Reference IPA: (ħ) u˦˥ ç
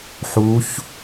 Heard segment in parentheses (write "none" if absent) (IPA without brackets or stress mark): ħ